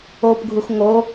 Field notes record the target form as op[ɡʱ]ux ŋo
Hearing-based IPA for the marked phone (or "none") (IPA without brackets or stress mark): ɡʱ